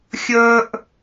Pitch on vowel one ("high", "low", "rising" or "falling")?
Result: high